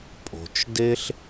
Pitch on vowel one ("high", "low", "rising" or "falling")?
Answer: low